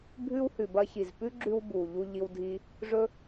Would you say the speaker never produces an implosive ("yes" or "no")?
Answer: yes